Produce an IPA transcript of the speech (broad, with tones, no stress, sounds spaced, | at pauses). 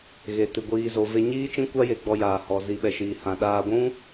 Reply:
ɣ e˨ t ɨ˨ ɡʷ iː˨ z o˨ v e˧ ɲ iː˦ t͡ʃ ĩ˦ kʷ a˦ j e˧ ɡ͡b ɔ˧ j aː˨ h ɔ˨ z i˨ ɓ ɛ˨ ʃ iː˨ h ã˨ ɗ aː˧ ɡʷ ũ˦